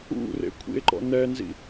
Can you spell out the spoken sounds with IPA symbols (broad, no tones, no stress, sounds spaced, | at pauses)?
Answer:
ṵ r ḛ kʷʰ ḭ e̯ ǃ ɔ̰ n ɛ n z ḭ